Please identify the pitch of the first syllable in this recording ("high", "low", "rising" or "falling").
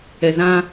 low